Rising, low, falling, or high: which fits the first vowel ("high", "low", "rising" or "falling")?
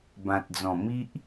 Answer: low